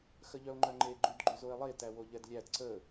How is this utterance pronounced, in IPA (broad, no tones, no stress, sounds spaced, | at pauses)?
x ə ʎ œ o̯ ŋ͡ǃ œ ŋ͡ǃ e ɡ͡ǃ y d ɡ͡ǃ y z o e̯ lˠ e t æ w o ʎ ɛ d lʲ æ d ǀ ə